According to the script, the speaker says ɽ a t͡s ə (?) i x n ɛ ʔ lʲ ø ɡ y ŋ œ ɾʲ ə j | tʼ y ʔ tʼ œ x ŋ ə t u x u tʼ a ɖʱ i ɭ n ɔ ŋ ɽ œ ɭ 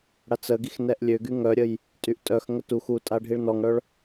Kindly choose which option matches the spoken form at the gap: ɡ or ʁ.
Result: ɡ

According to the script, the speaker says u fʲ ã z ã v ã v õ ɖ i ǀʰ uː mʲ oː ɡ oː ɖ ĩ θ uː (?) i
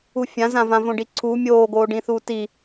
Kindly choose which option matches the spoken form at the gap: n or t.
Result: t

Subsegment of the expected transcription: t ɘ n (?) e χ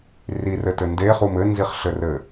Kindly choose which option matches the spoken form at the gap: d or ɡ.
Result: d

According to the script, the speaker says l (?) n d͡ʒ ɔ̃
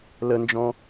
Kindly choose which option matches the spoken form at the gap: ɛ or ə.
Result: ə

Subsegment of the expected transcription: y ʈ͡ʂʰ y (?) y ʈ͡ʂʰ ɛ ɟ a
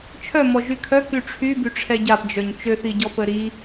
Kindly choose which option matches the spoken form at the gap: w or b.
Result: b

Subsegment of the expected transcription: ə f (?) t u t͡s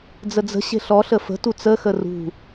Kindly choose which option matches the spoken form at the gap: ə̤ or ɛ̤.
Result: ə̤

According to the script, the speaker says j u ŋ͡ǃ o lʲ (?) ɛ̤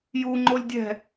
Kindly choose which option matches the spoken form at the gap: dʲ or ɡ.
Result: dʲ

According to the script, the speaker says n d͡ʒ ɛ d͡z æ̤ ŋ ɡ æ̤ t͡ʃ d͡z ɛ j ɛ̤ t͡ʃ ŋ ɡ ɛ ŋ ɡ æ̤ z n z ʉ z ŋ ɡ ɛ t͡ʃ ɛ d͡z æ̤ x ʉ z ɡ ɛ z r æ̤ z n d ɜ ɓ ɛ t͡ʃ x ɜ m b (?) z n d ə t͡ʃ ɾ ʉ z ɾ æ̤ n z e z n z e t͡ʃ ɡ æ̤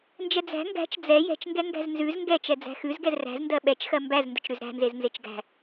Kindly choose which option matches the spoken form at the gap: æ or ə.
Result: æ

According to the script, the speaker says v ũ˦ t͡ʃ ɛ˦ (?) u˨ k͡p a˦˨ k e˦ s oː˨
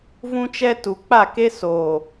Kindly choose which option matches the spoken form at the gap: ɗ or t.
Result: t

